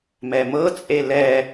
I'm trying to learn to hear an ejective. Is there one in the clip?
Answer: yes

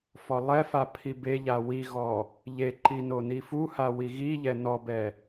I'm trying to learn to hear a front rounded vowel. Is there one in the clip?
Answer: no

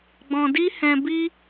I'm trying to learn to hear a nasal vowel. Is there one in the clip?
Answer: yes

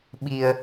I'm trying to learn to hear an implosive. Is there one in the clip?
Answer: yes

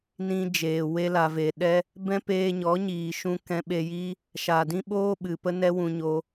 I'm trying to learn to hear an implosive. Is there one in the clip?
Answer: yes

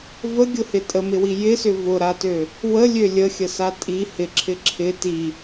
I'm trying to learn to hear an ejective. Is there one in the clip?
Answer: yes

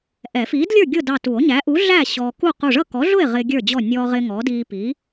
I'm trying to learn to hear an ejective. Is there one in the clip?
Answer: no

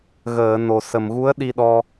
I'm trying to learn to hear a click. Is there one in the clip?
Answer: no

